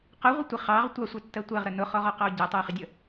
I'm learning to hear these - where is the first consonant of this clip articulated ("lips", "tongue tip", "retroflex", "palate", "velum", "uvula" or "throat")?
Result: uvula